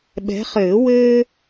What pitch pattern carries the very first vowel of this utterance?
rising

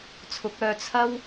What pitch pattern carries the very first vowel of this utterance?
rising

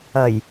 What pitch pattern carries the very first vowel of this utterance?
low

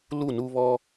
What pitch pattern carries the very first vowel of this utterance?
falling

